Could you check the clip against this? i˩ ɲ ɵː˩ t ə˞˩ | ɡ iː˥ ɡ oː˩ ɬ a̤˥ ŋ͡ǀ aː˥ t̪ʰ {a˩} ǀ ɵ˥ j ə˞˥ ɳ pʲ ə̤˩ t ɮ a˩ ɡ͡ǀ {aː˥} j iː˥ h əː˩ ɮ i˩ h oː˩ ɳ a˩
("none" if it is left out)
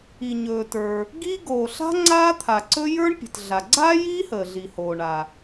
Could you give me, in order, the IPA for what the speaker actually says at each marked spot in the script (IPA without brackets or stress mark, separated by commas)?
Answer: a˩, aː˥